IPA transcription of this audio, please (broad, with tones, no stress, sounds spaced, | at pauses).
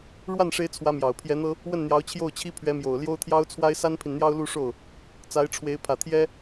ɻ w a˥˩ n ʂ e˧˥ ɪ̯ t͡sʰ w ä˧˥ m j ɑ˨˩ ʊ̯ pʰ j ɛ˧˥ n̪ ɤ˥ | w ə˥˩ n n̪ j ɑ˧˥ ʊ̯ t͡ɕʰ j o˥˩ ʊ̯ t͡ɕʰ i˥ pʰ ɥ ɛ˧˥ m j o˨˩ ʊ̯ l j o˥ ʊ̯ t̪ʰ j ɑ˥ ʊ̯ t͡sʰ w a˥ ɪ̯ s a˥ n pʰ i˨ n n̪ j ɑ˥ ʊ̯ l u˥˧ ʂ o˥˩ ʊ̯ | t͡s a˧˥ ɪ̯ ʈ͡ʂʰ w e˧˥ ɪ̯ pʰ ä˨˩ t̪ʰ j ɛ˥